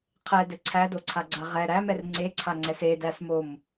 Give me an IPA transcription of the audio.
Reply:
qʰ ɛ d ɘ ǀʰ æ d o ǀʰ a ɡ͡ǀ a ʁ ɛ ɾ æ m ɛ r ŋ͡ǀ e ǀʰ a ŋ͡ǀ ɛ s e d æ s m o m

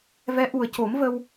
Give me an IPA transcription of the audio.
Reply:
v ɛ˧˥ ʔ u˨˩ ə̯ c o˨˩˦ m v ə˧ w

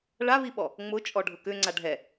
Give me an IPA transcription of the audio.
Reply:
ɭ a β i ɓ ɔ | ŋ͡m ʊ t͡ʃʼ ɔ ɖʱ ʊ k ʏ ŋ͡ǀ a ɖʱ ɛ

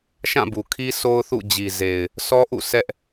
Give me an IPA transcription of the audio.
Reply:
ʃ ã˦˨ b u˨ kʰ i˦ sʰ o˦ ʊ̯ θ ṵ˦˨ d͡ʑ i˨ z e˨ ɪ̯ | s ɔ˦ ʔ ṵ˦˨ s ɛ˦ ʔ

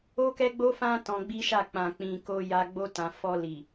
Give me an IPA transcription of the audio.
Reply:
o˦ k ɛ˦ ɡ͡b o˦ f ã˦ t ɔ̃˧ ɡ͡b i˦ ʃ a˦˨ k͡p ã˨ k͡p ĩ˨ k o˧ j a˧ ɡ͡b o˧ t ã˨ f ɔ˧ l i˨

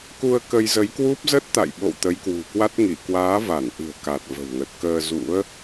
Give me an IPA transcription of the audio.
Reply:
k u˧ ə̯ k ə˧ j z ə˨˦ j k w u˦˥ p̚ z ə˦˥ t̚ t̪ a̰˧˨ j ɓ o̰˧˨ w t̪ ə˨˦ j k w ṳ˨˩ k w a˦˥ t̚ ŋ i˧˩ k w aː˨˦ v a˧˩ n ʔ ɨ̤˨˩ ə̯ k a˨˩ t̚ v ə̤˨˩ w ŋ ə˨˩ t̚ k əː˧ z ṵ˧˥ ə̯

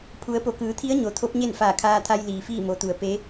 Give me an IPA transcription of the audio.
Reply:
pʰ u˩˧ ə̯ p o˩˧ k ɯː˩˧ t̪ʰ i˧˥ ə̯ ɲ o˩ t̪ʰ o˧˥ p̚ ɲ e˥˨ n f aː˧˩ kʰ aː˧ t̪ʰ a˧ j l iː˩ f iː˥˨ m o˩˧ t̪ u˩˧ ə̯ p e˧˥

